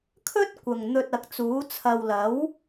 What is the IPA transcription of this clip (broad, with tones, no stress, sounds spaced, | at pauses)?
kʰ ɵ˥ t̚ kʷ ɐ˨˩ ŋ n̪ ɵ˧ t̚ ɐ˨ k̚ t͡s uː˨˥ t͡sʰ ɐ˨ w l ɐ˨˥ w